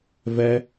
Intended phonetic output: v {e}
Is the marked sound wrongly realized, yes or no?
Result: yes